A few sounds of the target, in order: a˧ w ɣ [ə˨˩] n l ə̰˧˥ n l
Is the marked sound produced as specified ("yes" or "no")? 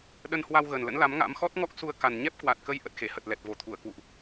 yes